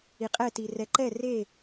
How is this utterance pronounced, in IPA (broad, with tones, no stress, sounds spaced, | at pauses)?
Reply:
i˧ qʼ ɛ˥˧ t i˧ r ɛ˧ ǃ ɛ˥˧ r e˥˧